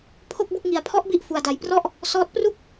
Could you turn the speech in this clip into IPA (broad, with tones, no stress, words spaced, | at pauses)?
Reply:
pʰo˥˩k̚bu˥˩k̚ ŋi˧a̯pʰɔ˦˥ʔbi˦˥ʔ fu˧a̯da˧j prɔ˥˩ʔ | sɔː˦˥t̚ pru˥˩k̚